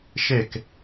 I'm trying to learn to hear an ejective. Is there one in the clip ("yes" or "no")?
no